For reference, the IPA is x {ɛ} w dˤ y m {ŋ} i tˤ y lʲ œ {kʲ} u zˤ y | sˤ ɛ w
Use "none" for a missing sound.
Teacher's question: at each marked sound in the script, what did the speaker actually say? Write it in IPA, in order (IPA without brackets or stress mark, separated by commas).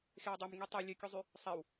e, ŋ, kʲ